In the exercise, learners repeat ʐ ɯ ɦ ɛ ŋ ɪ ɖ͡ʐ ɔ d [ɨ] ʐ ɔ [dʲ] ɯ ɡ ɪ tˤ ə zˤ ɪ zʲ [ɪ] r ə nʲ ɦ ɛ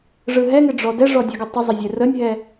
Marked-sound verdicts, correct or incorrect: incorrect: ɛ, correct, incorrect: ɛ

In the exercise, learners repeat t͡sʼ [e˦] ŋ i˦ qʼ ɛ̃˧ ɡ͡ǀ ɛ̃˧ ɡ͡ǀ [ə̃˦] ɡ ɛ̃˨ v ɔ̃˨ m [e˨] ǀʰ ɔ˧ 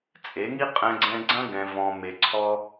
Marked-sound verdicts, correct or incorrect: incorrect: e˨˦, incorrect: ɐ̃˦, correct

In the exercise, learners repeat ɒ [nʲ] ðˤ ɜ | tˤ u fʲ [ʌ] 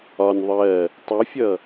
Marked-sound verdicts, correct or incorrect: correct, correct

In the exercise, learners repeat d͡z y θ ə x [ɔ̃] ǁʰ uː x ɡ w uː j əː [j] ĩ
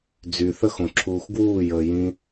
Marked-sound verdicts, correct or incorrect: incorrect: õ, correct

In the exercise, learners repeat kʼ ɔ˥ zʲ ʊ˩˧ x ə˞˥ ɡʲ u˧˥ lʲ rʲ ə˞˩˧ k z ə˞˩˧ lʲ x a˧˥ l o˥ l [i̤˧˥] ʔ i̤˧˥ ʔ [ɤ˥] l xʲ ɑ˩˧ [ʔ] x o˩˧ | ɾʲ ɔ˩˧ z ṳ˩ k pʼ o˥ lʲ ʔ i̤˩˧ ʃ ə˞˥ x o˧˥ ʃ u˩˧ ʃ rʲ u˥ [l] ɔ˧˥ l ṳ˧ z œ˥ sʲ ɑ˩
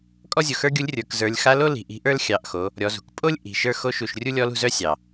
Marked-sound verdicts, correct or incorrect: incorrect: i̤˩˧, incorrect: ə˞˥, correct, incorrect: lʲ

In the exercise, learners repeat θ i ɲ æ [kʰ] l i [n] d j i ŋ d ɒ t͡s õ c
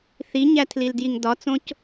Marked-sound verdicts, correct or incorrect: incorrect: tʰ, incorrect: l

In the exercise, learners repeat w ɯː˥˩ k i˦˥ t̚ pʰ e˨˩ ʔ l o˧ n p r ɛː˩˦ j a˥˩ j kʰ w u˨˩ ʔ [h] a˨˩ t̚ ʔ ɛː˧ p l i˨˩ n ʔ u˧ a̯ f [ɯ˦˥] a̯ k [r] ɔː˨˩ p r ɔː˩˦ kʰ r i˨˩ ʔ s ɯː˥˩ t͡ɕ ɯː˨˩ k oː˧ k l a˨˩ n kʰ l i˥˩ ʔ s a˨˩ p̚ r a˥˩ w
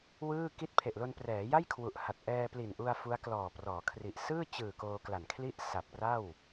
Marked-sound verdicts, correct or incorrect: correct, incorrect: u˦˥, incorrect: l

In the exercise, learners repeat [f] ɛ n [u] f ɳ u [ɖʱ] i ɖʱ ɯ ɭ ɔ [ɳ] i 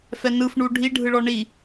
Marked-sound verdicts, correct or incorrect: correct, incorrect: ɯ, correct, correct

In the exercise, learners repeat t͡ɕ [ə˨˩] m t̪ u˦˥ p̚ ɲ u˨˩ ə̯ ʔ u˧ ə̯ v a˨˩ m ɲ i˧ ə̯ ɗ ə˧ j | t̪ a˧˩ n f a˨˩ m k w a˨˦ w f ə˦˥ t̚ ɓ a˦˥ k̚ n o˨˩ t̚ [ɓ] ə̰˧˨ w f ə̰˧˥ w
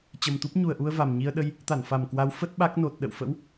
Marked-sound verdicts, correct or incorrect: correct, incorrect: ɗ

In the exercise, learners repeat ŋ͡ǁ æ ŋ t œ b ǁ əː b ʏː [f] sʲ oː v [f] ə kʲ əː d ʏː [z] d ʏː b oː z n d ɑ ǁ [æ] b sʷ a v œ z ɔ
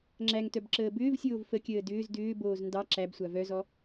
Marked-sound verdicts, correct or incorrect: incorrect: v, correct, correct, correct

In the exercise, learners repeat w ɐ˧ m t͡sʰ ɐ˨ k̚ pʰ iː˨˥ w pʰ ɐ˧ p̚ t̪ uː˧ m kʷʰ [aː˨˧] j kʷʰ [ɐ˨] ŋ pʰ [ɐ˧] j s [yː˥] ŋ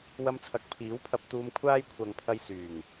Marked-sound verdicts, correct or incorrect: incorrect: aː˥, correct, correct, incorrect: yː˨˩

